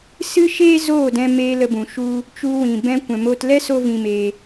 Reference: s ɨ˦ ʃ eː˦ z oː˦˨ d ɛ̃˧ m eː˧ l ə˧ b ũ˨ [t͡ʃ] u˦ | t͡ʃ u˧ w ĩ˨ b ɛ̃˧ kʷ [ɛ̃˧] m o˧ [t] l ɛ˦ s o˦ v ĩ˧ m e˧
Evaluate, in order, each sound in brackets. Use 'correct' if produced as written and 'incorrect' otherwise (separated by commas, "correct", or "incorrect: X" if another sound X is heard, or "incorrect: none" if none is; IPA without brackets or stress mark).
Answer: incorrect: ʃ, incorrect: ɛ̃˨, correct